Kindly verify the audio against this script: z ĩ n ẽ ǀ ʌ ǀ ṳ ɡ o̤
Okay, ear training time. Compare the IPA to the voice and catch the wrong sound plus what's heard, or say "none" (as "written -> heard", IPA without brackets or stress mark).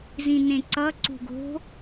none